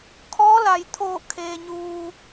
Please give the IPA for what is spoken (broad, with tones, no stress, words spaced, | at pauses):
kʰɔː˧˥la˩j t̪ʰoː˧˩ kʰeː˩ɲuː˩